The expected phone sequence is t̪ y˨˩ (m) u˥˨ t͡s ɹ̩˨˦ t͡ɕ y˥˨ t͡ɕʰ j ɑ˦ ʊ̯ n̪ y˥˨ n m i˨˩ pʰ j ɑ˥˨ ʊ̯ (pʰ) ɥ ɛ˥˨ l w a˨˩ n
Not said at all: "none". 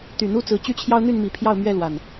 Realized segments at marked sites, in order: n̪, m

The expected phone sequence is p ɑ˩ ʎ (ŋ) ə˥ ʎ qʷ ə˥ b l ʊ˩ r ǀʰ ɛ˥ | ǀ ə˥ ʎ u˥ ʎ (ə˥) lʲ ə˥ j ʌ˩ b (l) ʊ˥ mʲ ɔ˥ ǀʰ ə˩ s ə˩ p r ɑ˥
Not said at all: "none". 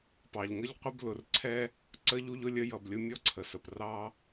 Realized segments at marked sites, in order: ŋ, ʊ˥, lʲ

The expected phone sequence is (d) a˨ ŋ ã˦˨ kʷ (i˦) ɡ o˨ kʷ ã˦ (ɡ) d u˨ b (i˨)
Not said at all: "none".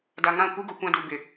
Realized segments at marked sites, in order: d, i˦, none, ɪ˨

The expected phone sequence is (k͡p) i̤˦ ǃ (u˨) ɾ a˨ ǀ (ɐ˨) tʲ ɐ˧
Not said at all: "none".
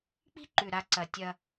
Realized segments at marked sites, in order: k͡p, ʉ˨, ɐ˨

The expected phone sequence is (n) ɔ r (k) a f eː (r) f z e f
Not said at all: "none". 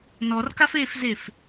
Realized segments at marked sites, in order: n, k, none

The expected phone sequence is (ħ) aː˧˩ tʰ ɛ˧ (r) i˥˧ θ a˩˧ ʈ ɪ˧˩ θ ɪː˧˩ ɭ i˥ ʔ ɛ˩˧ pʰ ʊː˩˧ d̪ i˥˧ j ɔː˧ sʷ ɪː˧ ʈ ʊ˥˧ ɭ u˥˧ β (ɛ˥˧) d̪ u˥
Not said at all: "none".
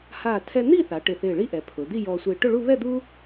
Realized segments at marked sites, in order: h, n̪, ɛ˥˧

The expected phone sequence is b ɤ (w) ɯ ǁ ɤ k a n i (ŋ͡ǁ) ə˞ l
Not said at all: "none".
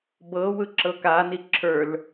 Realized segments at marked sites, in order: w, ǁʰ

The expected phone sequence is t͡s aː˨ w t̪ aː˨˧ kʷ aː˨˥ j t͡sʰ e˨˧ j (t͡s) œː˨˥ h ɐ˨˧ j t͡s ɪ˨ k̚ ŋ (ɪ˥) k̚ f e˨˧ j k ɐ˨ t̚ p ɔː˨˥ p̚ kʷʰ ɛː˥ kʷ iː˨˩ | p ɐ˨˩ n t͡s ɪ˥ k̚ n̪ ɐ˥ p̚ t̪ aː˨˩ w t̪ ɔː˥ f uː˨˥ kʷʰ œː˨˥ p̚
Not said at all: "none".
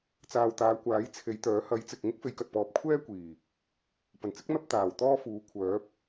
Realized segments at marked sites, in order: t̪, ɪ˥

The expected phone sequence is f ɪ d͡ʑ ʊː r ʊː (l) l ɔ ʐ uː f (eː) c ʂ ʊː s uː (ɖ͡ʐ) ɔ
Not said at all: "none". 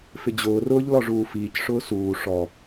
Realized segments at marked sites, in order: ʎ, iː, ʂ

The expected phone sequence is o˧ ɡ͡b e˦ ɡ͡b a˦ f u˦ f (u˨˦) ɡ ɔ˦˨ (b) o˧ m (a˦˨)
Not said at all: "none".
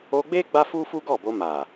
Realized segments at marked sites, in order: u˦, b, a˨

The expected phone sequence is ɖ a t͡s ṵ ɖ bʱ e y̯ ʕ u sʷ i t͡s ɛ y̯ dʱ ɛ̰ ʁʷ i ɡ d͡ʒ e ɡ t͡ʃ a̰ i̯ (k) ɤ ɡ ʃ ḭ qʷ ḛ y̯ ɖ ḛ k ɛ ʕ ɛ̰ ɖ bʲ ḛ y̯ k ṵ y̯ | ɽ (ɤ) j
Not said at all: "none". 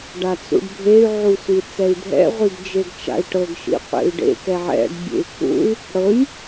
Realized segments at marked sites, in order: ʈ, ɤ

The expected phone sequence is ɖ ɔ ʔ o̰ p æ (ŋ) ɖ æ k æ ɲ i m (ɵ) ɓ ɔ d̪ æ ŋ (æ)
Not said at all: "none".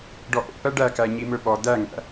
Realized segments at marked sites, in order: none, ɵ, æ̰

